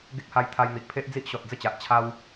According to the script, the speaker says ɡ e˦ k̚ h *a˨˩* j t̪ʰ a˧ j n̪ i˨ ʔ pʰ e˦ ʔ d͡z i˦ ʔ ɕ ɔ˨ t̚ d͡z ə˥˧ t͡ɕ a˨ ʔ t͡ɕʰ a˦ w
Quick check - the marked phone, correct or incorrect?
incorrect